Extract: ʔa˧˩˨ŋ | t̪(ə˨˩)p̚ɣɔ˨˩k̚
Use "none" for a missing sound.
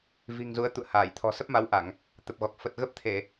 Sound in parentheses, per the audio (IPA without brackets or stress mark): ə˨˩